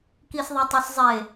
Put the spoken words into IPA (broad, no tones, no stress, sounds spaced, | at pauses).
k i s ðˤ a tˤ o s zˤ e